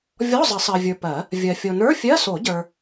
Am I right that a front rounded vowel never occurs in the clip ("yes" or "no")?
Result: yes